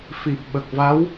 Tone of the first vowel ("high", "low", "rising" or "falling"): low